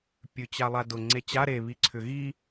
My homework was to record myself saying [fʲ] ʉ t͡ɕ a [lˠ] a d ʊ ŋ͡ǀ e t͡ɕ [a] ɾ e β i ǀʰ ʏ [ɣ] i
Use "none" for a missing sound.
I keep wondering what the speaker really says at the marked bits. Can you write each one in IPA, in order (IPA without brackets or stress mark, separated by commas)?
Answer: pʲ, lˠ, a, ɣ